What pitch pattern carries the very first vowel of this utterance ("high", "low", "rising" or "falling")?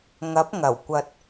rising